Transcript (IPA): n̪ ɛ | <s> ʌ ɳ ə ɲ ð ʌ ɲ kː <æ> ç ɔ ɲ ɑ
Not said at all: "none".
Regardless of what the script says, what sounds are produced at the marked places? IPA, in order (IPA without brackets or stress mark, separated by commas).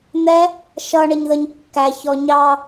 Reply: ʃ, æ